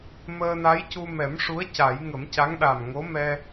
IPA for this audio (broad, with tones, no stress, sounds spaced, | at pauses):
m əː˧ n a˧˥ j c u˧ m ɛ˨˩˦ m ʂ u˧˥ ə̯ c a˨˩˦ j ŋ ə˨˩˦ m c a˧˥ ŋ ɗ a˨˩ m ŋ o˧˥ m ɛ˧